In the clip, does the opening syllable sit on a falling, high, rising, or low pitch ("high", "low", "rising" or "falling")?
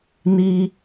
low